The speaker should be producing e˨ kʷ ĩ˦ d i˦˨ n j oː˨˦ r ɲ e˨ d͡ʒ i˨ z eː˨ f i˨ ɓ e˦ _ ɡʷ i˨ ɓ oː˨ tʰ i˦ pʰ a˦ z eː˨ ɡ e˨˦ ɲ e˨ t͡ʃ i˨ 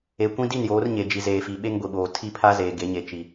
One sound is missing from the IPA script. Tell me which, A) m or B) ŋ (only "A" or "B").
B